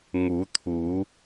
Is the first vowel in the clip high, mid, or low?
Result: high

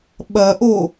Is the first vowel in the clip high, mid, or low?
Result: low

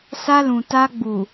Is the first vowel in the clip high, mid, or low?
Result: low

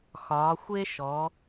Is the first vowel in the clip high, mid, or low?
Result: low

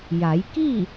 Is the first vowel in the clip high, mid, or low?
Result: low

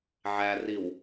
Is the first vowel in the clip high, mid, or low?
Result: low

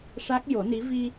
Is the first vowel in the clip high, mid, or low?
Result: low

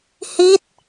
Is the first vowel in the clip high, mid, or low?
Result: high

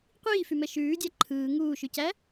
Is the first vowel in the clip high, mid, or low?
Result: high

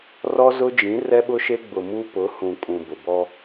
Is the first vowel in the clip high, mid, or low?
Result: mid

